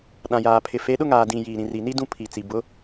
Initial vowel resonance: nasal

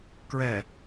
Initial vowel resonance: oral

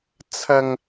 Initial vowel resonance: oral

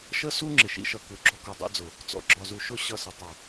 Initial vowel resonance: oral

